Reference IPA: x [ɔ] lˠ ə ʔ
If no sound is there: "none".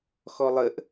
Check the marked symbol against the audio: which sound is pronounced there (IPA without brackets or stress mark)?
ɔ